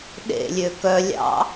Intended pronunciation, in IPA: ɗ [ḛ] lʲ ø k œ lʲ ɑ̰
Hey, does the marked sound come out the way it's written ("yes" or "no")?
yes